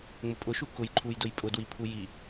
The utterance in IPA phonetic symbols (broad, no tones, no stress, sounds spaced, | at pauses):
ŋ͡m ʊ pʼ ʊ ʃ u k ʊ j ǃʰ u j d ʊ j pʼ ʊ d w i pʰ u j i